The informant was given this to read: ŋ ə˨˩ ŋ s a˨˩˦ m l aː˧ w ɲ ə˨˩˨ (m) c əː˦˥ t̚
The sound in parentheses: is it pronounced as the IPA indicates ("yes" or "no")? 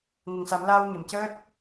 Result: yes